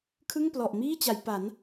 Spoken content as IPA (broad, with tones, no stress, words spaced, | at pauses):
kʰɯ˥˩ŋplɔ˨˩ʔmiː˥˩t͡ɕa˩˦j pa˩˦n